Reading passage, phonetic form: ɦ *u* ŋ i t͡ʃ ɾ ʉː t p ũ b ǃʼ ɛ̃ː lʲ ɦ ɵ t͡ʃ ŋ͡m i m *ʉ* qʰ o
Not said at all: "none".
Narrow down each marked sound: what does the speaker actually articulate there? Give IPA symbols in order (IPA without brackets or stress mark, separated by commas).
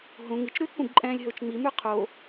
ũ, ʉ